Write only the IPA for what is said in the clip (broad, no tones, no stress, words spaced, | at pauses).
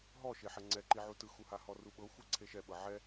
ɦɔ ʃeħɛŋ͡ǀɛǃi ʕutɯxuha hɔruɓɤxʷi ǀʰeʃɛɓɤ ʕɛ